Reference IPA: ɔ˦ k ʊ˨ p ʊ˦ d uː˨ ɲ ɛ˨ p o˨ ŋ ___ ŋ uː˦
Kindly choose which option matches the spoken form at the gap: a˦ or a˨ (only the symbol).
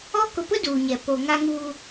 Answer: a˦